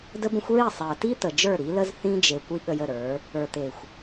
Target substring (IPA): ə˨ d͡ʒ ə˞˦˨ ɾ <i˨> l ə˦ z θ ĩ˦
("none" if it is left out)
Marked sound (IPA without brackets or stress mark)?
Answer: i˨˦